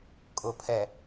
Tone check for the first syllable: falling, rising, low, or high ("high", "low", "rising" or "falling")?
low